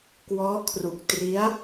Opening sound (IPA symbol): k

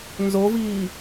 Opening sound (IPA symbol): n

